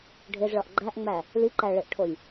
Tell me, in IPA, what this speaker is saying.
ɖʱ e z ɭ ɒ ʔ ɡ͡ǃ æ ʔ ŋ͡m æ | l i ǃ æ ɭ e ʔ ʈʰ o j

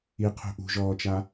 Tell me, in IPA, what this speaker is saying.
i qʰ ṳ ʔ ṳ ʒ ɔː t͡ʃ a

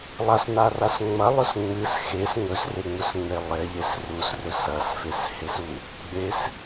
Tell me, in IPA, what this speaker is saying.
lˠ a s n a r a s ŋ͡m ɐ lˠ ɵ s ŋ͡m ɨ s x e s ŋ ɵ s r e ŋ͡m ɵ s ŋ͡m e lˠ e ʎ e s r u s r ɵ s ɐ s f e s h e s u | ɡ͡b e s

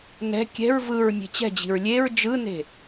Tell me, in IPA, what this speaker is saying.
n ɛ̤ kʲ ɛ̤ ɹ v ɯ ɹ mʲ e̤ t͡ɕ ɛ̤ d͡ʑ i̤ ɹ lʲ e ɹ d͡ʒ ɯ n e̤

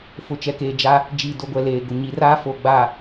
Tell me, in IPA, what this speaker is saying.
f ʊ˨ t͡ʃ ɛ˨ k eː˨ d͡ʒ a˦ | d͡ʒ iː˨ d o˨ ɡʷ ɛ˨ l eː˨ ɡ ʊ˨ ɲ i˨˦ r aː˦ f oː˨ ɡ͡b aː˨

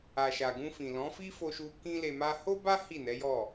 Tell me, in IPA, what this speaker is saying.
a˨ ʃ a˨ ɡ ũ˧ f ĩ˨ l ɔ̃˨˦ f i˦ f o˧ ʃ u˧ k ĩ˦ l e˧ m a˦ h o˦ b a˦ h i˦˨ n ɛ˨˦ j ɔ˦˨

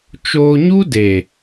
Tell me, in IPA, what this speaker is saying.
t͡ʃ oː˧ ɲ u˦ d e˨

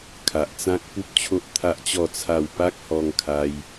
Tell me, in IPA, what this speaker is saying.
kʰ a˨ ʔ t͡s ã˦ k̚ p u˦ p̚ t͡ɕʰ o˦ ʔ t̪ʰ a˦ ʔ t͡ɕ ɔ˥˧ t͡sʰ a˥˧ w p a˦ k̚ h ɔ˧ ŋ kʰ a˧ j

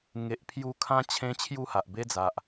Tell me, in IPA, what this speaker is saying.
ŋ e˨ ʔ pʰ j u˧ kʰ ã˧ t͡ɕʰ ẽ˧ t͡ɕʰ j u˥˧ h a˨ ʔ b e˦ d͡z a˨ ʔ

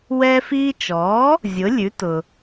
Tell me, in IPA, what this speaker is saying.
w ɛː˧ f iː˧ t͡ʃ ɔː˩˥ | zʲ ʊ˩˥ lʲ ʉ˩˥ t ʊ˩

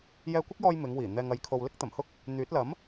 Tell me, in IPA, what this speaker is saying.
j ɛː˧ kʷ ɪ˥ k̚ j ɔː˧ j m ɪ˨˧ ŋ w iː˨˩ n̪ ɛː˨ ŋ ɐ˨ j kʰ o˨ w l ɪ˥ k̚ t̪ ɐ˨˩ m h ʊ˥ k̚ | n̪ yː˨˥ t̚ l ɐ˨˥ m

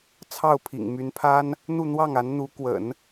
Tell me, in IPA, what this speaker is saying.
t͡sʰ ɑ˥˩ ʊ̯ pʰ ḭ˨˩ ŋ m y˧˥ n pʰ a˥ n | n̪ u˥˧ n̪ w ɑ˥˩ ŋ a˧˥ n n̪ u˧˥ k w ə̰˨˩˦ n

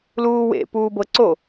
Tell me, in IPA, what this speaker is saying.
l uː w ḛ p uː b ɤ ǀ o

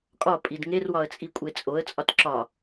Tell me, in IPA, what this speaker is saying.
kʼ ɒ pʼ i d ŋ e r w ɒ ə̯ t͡sʼ i kʷʼ e t͡sʼ o ə̯ t͡sʼ ɒ t ǁ ɒ

